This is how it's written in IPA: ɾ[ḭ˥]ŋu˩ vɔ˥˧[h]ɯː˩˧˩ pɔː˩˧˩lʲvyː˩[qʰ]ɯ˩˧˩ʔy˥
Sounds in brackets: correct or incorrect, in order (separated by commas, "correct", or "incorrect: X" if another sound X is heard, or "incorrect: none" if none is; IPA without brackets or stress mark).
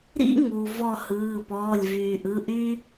correct, correct, incorrect: ʔ